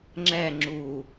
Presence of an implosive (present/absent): absent